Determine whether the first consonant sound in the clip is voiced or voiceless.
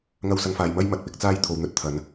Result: voiced